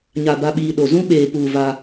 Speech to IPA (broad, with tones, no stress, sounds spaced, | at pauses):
ɲ a˨ b a˨ ɓ iː˨ ɗ o˨ z ũ˦ ɓ eː˨ p uː˨ v a˦